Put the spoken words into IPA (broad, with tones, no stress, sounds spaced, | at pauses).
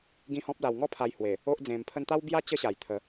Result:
ɡ ĩ˦ h ɔ̃˦ p̚ l a˧ w ŋ ɔ˥˧ pʰ a˧ j h w e˨˩ | o˦ ʔ d͡z ẽ˧ m pʰ ə˦ n t̪ a˦ w b j a˦ t͡ɕ ə˦ ɕ a˨˩ j t̪ʰ ə˨˦